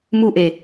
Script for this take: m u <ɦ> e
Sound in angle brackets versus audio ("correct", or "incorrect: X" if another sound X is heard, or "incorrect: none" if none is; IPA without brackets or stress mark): incorrect: ʔ